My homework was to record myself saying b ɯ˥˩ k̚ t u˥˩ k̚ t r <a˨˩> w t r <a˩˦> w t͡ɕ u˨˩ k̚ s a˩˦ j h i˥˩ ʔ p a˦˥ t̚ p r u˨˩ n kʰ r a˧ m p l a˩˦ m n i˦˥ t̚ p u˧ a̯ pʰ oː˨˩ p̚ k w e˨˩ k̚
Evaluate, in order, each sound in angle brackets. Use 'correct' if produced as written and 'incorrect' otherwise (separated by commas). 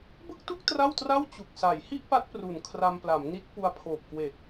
incorrect, incorrect